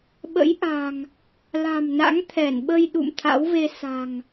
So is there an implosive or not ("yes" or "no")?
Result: yes